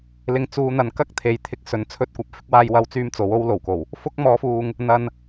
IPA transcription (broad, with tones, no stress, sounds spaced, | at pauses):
l ɪ˨˧ ŋ t͡s uː˨˧ n̪ ɐ˨ n k ɐ˥ k̚ t̪ʰ e˨ j t̪ʰ ɪ˧ k̚ s ɵ˨˥ n t͡sʰ ɵ˥ t̚ kʷ ɐ˨˥ p̚ f ɪ˨˥ k̚ w aː˧ j w ɐ˧ w t͡s yː˧ m t͡s o˨˥ w o˥ w l o˨˩ w k o˨˩ w | f ʊ˥ k̚ m ɔː˨˥ f uː˨ ŋ | n̪ ɐ˨ n